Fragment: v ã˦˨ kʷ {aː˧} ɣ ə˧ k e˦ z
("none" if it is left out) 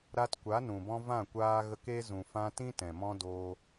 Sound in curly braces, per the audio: aː˧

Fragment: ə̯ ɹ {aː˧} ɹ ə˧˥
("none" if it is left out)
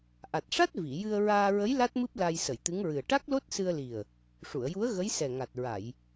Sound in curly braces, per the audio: aː˧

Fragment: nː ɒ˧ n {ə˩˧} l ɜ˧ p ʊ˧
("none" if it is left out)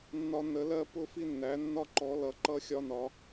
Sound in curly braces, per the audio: ə˩˧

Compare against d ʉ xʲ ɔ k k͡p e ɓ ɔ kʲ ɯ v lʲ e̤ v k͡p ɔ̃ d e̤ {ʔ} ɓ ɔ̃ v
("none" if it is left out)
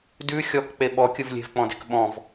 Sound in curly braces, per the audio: k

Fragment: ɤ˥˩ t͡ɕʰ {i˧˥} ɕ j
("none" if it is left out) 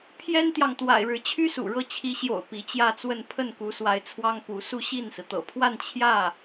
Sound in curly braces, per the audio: i˧˥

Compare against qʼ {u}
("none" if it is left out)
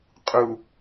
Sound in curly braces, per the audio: u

